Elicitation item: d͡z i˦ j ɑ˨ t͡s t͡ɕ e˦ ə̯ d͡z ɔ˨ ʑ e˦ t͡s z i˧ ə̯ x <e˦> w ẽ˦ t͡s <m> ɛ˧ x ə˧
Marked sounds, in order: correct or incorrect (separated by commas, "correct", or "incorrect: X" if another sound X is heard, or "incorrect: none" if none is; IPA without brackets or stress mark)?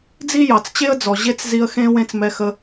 incorrect: ẽ˦, correct